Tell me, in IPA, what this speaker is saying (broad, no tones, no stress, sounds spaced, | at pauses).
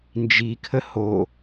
n d͡ʒ i kʰ ə h o